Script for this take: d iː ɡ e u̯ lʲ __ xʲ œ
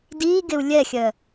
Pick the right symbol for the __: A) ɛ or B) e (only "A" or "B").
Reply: A